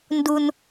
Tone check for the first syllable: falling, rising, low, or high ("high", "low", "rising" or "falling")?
high